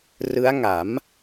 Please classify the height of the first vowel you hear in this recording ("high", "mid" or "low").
high